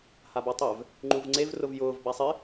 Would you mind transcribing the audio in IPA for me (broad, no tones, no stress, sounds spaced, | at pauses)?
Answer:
h a b ɔ tˤ ɛ v | ŋ͡ǃ u v ŋ͡ǀ e v r ʊ v j ʊː v b a sˤ ɪ